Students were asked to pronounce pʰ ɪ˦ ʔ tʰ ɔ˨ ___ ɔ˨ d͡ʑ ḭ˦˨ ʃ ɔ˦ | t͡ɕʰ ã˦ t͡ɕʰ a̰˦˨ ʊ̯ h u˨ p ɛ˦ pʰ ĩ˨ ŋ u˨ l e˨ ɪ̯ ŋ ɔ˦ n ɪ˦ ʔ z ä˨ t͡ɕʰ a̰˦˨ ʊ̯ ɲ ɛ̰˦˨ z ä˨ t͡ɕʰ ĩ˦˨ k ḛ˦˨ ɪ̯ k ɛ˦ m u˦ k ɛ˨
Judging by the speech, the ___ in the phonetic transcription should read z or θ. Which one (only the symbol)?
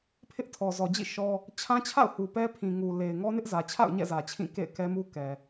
z